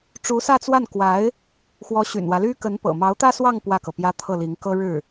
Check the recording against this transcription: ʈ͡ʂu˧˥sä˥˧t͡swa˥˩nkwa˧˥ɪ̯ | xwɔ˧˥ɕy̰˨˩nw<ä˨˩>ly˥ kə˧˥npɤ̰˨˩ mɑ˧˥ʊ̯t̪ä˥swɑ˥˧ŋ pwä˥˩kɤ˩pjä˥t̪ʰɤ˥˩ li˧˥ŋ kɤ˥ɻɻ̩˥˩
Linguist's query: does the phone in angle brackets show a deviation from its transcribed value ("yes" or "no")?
yes